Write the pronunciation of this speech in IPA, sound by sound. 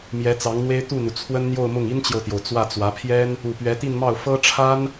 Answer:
m j ɛ˧˥ t͡s ɑ˧˥ ŋ n̪ w e˥ ɪ̯ t̪ u˥˩ n̪ u˩ t͡sʰ w ə˥ n n̪ j o˥˧ ʊ̯ m ʊ˥˩ ŋ i˥ n t͡ɕ j o˨ ʊ̯ t̪ j o˩ ʊ̯ t͡s w ä˥˩ t͡s w ä˧˥ pʰ j ɛ˥ n | u˨˩ p ɥ ɛ˧˥ t̪ i˥˧ n m ɑ˥˩ ʊ̯ f ɤ˥ ʈ͡ʂʰ a˥ n

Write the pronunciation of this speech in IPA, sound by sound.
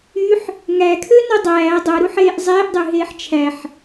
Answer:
y ħ | ŋ æ kʰ ø n o dˤ æː dˤ o ɾ u ħ eː ʔ zˤ eː ʔ dˤ ø ɦ eː ħ t͡ʃʰ æ ħ

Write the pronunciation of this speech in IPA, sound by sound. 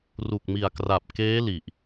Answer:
r u˨˩ k̚ m i˨˩ a̯ k r a˨˩ p̚ k eː˦˥ l i˨˩ ʔ

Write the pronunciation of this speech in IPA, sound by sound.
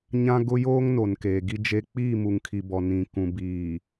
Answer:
ɲ ã˦ ɡ ʊ˦ j oː˦ ŋ n o˨ n k eː˨ ɡ i˦ d͡ʒ e˦ k͡p iː˦˨ m u˨ ŋ kʰ i˨ b ɔ˨ n ĩ˨ k ũ˨ b iː˨

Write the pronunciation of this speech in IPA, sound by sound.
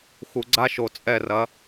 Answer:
x u˨ ɡ͡ǀ a˦ ʃ o˨ t͡sʼ ɛ˦˨ r ɐ˨˦

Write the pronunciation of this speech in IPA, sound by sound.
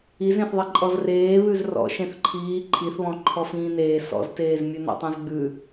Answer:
i z ẽ θ ðˤ i ǃʼ ɔ z r eː β ʉ z r ɔ̰ ʃ ẽ θ ǃʰ iː ǃʰ i θ β ɔ̃ ǃʰ ɔ f ĩː n eː s ɔ̰ z t eː z mʲ ʉ n ɔ̰ tˤ ẽ z ɡ͡b ʉ

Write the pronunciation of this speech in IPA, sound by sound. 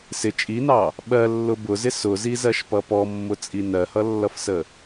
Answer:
s ɪ t͡ʃʼ i n ɑ | ɓ ɜ lː ʊ b ʊ z ɪ s ʊ z i z ɜ ʃ p ʌ p ɔ mː ʊ t͡sʼ i n ɜ h ʌ lː ʌ f s ə

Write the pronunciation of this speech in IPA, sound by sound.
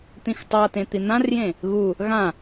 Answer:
t̪ ĩ x tˤ a t ẽ t̪ i n̪ ã r j ẽ | ɣ u | ɣ ã

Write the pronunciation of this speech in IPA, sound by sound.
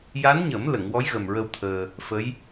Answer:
j a˧˥ n ɲ ə˨˩˦ m l ə˨˩˨ ŋ w ɔ˧˥ j ɣ ə˨˩ m ɹ ə˧ w t̪ʰ əː˧ | f ə˧˥ j

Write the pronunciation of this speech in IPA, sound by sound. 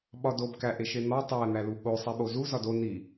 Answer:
ɓ ɒ d o b k æ ʔ e ʃ e n̪ ɒ tˤ æ n̪ æ l u ɠ o sˤ i ɓ o z u z ɒ d o n i

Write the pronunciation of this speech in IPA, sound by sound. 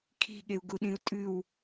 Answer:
kʰ i̤ ɠ e u̯ ɡ u ɗ ĩ u̯ tʼ ʉ w

